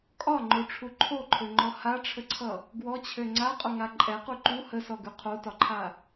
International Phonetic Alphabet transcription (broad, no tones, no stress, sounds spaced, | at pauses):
kʼ ɒ ŋ͡ǃ o ʈ͡ʂʰ u ǃʰ o ǃʰ ø ŋ͡ǃ ɔ h a ʈ͡ʂʰ ə ǀʰ ʌ | ɡ w ɔ t͡ɕʰ ø ŋ͡ǀ a qʼ o ŋ a ǃʼ ɛ q u ǃ u h ə s ɔ ɡ ʉ qʰ o t ɒ ǃʰ a